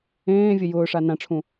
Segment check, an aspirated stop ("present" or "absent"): present